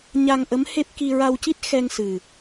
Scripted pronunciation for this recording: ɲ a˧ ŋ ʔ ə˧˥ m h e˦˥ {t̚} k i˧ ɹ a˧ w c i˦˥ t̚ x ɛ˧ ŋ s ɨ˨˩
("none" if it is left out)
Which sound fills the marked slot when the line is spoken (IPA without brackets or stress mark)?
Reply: p̚